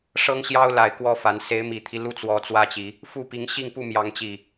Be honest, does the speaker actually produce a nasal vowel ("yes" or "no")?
no